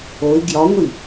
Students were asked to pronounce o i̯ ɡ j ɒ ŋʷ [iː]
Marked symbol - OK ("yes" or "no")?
no